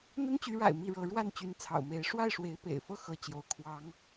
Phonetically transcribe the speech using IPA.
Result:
n̪ə˥nt͡ɕy˧˥ɻa̰˨˩ɪ̯ mi˥˩ɻɤ˧˥ ɻwa˥˩nt͡ɕy˧˥nt͡sʰɑ̰˨˩ʊ̯me˧˥ɪ̯ ʂwa˥˩ɪ̯ʂwe˧˥ɪ̯pḛ˨˩ɪ̯fɤ˥˩ xɤ˥ t͡ɕjo˥ʊ̯ kʰwɑ˧˥ŋ

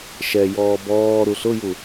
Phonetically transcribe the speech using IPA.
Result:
ʃɛjɔː bɔː ɾuɬʊju

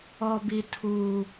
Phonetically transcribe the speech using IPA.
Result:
ɔ˦bi˦ tʰuː˦

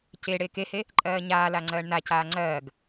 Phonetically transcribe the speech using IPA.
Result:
ce ɽeːkehe | ǃʼɜːɲaːla ŋ͡ǀɜːɳnacaː ŋ͡ǀɜːɡ

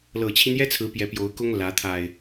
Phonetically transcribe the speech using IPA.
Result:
lɤ˨˩t͡ɕʰi˦njɛ˦t͡sʰɹ̩˨˦ pjɛ˨˦pjo˨˦ʊ̯kʊ˦ŋ lä˨˦t̪ʰa˨˩ɪ̯

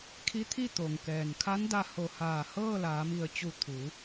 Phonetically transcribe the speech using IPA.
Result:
kʰi˧˥t̪ʰi˥˨t̪o˩ŋkɛː˩n kʰa˧˥nda˧ ho˧˩ haː˧˩ hɤː˥˨laː˩˧mi˧˩ə̯t͡ɕu˧˩ t̪ʰu˩˧

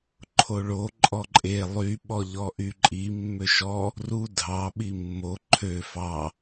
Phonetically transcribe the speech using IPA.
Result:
ǃʰoɭo ǃʼɔǃʼe lˠy ɓɔʎɔʔyǃʼi mːøʃɔ | ru dʱɑ ɓimːo ǃʰø fɑ

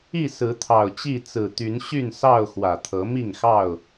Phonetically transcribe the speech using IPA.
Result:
i˥˨ sɹ̩˨˦t̪ʰɑ˨˩ʊ̯t͡ɕi˥˨ t͡sɹ̩˨˩t̪y˨˦n ɕy˥˨nsɑ˥˨ʊ̯ xwä˨˩t̪ʰɤ˨˦mi˥˨ŋxɑ˥˨ʊ̯

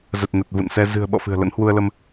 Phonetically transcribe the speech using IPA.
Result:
zə˨˩t̚nə˨˩t̚ vṵ˧˨nsɛ˧ zɨ̤˨˩ə̯ ɓɔ̰˧˨fɨ̤˨˩ə̯ lə̰˧˥nhwu˧ə̯lə˧m

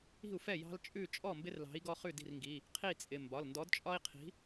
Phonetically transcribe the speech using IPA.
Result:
i̤˥˩u̯fɛ˥˩ jɑ̤˦lt͡ʃʼʉ˥˩ t͡ʃʼɔ˥˩mbɪ˦rlɑ̤˨˥i̯ ɡɔ˦χʉ˥˩di̤˥˩rŋɡi˩˧˩ | qʰi˥˩t͡sʼɪ˩˧˩ mbɒ˩˧˩lndɔ˨˥dt͡ʃʼɒ˦i̯qʰi̤˨˥

